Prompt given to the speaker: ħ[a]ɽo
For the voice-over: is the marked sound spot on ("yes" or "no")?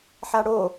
yes